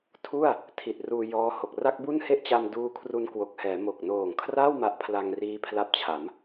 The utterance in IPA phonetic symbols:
tʰ u˥˩ a̯ | tʰ i˨˩ t̚ r uː˧ j ɔː˦˥ h o˨˩ k̚ r a˥˩ k̚ b u˥˩ n h e˥˩ ʔ t͡ɕ a˧ m d uː˦˥ kʰ r u˧ n k w o˨˩ k̚ h ɛː˩˦ m o˨˩ k̚ n oː˨˩ ŋ kʰ r a˥˩ w m a˦˥ ʔ pʰ l a˧ ŋ r iː˦˥ pʰ l a˦˥ p̚ t͡ɕʰ a˩˦ m

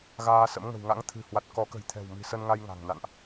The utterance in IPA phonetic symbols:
ɣ aː˧ s ə̰˧˥ m ŋ ə̤˨˩ w ŋ a̰˧˥ ŋ t̪ʰ ɨ̤˨˩ h w a˨˩ t̚ k ɔ˨˦ k ə̤˨˩ j t̪ʰ ɛ̤˨˩ w m i̤˨˩ s ə˧ n ŋ a˧ j ŋ a̤˨˩ ŋ n a̰˧˨ n ʔ

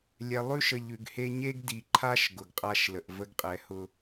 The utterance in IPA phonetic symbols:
lʲ ɛ˨ lˠ ʉ˦ ʃ ə˨ ʎ ʉ˨ ɡ h e˦ ɲ e˦ ɡ d i˨ ǃʰ a˦ ʃ ɡ ʊ˨ ɡ qʼ a˦ ʃ l ə˨ ʔ v ə˦ ɡ qʼ ɛ˨˦ h ʊ˦

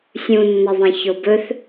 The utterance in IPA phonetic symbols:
sʲ ũ nː ə ðˤ ĩ ç o b ɵ θ

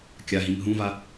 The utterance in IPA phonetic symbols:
kʲ a ɦ ĩ m ɦ ũ v a

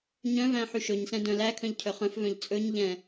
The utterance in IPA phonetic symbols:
ɲ œ̃ v æ̃ ħ y ʃ ɵ ɲ s ɛ̃ d œ̃ l æ kʰ œ̃ ʎ cʰ œ χ œ̃ f v œ̃ ʎ t͡sʼ ɵ ɲ ʎ ɛ̃

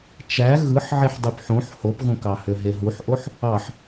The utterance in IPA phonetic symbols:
t͡ʃ æ ɣ ɯ ħ ʕ e ħ dˤ y p ħ õ ħ h o p ɣ õ k ɑ h ø ɦ e ɦ u ħ ʔ o ħ | ɑ ħ

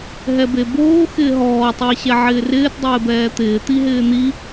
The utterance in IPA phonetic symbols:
ɦ ɛ b e b oː x ɪː ɦ ɔː tˤ ɪː ɕ ɛ ʕ ɪː r ɪː t dˤ ɪː b ɛː t̪ ɪː t̪ i ɦ ɪː n̪ i

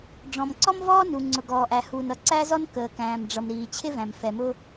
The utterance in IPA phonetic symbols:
ɖ͡ʐ ɔ̃˩ m ǀ ɔ˥ m v ɔː˥ n u˩ ŋ͡ǀ ʊ˩ ɡ ɔː˩ ʔ æ˩ h uː˩ n ʌ˩ ǀ æ˥ z ɔ˥ n k əː˩ k æ̃ː˩ m ɖ͡ʐ ʌ˩ m ɾ iː˩ t͡ɕʰ ɪ˥ v æ̃˩ m f ɛ˩ m ʊ˥

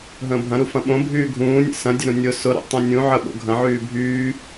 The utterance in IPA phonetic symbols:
ɦ ə̃ː bʱ ɐ̃ ɾ u f ɐ̃ ɓ õ bʱ yː ɡʱ ũː nʲ ə̰ s ɐ̃ dʲ ə ɾ ũ nʲ ʊ s ʊ ɾ o̰ tˤ ũ nʲ ũ ʕ ə ɓ o̰ ɡʱ ɐ̃ ʕ yː bʱ yː

